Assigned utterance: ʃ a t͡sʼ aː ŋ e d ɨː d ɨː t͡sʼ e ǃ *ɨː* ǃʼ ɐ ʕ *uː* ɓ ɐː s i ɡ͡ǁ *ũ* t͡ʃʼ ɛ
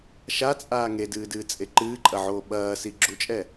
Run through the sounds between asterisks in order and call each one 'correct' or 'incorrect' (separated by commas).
correct, incorrect, incorrect